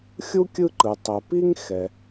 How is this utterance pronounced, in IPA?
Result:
xʲu˥kʲɯ˦ǃɯ˩ tˤɛ˩pi˥ŋ xɛ˩

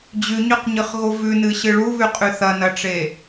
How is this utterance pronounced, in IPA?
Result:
d͡ʑʉɲʉqɲɨχɣo vʉnɨɕɨ ɭuβʉqʼʉ θɐnɐʈ͡ʂe

